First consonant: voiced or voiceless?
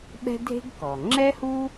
voiced